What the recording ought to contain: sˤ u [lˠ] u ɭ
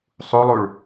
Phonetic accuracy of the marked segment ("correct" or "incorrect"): correct